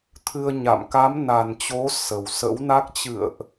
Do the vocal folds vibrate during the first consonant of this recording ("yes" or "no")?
no